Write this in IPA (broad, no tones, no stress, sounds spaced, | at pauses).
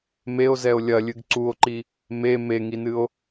m e o̯ z ɛ o̯ lʲ ɐ lʲ ɨ ɡ ǀ u o̯ ǃ i | m e m e ŋ i n ɨ o̯